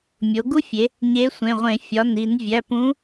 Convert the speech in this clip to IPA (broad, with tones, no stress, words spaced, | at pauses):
mʲo˩˧ɡu˦˥fʲe˩˧ | ɲe˨˥sʷẽ˩˧˩ʁʷẽ˧˩˧ fʲɒ˩˧˩ni˧˩˧n vʲæ˩˧˩p ũ˨˥